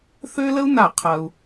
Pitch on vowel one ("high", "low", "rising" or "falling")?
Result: high